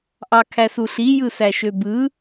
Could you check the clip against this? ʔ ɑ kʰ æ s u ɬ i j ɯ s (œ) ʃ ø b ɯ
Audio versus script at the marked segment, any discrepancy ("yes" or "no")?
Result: yes